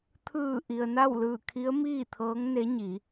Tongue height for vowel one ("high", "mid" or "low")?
high